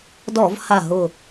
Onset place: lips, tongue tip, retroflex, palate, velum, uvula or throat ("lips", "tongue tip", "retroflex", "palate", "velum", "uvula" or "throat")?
tongue tip